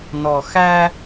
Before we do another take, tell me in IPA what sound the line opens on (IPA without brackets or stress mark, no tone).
n